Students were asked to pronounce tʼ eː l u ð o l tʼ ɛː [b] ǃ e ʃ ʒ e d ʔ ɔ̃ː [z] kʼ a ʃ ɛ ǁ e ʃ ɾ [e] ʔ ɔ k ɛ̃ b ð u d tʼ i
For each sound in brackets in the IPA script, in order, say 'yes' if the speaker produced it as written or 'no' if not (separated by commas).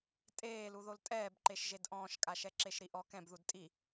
yes, no, no